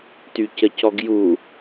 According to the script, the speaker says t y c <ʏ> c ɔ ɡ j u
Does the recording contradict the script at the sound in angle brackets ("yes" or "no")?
yes